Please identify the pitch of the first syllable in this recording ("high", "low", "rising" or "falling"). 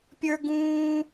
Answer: high